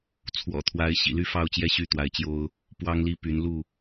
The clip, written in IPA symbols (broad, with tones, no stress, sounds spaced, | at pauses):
t͡sʰ w ɔ̰˨˩ t̪ʰ w a˨˦ ɪ̯ ɕ ḭ˨˩ l y˥˨ f ɑ˥˨ ʊ̯ t͡ɕ j ɛ˥˨ ɕ y˥˨ t̪ w a˨˦ ɪ̯ t͡ɕ j o˦ ʊ̯ | p w ɑ˦ ŋ l i˦ p y˨˦ n l u˥˨